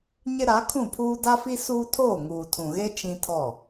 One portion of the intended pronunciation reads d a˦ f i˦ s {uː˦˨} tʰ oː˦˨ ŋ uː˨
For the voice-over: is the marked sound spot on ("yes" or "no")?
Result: no